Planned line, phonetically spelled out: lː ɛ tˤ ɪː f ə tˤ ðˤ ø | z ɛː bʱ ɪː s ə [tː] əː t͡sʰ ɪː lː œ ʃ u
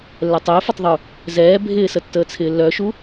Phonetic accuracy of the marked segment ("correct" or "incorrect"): correct